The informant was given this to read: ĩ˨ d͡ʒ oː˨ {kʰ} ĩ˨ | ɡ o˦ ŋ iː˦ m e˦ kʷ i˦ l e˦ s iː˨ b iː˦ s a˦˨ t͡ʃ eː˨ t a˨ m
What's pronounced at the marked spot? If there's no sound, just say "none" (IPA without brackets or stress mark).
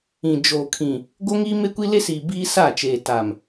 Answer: kʰ